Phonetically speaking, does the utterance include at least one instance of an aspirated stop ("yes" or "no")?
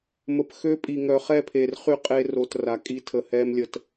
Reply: yes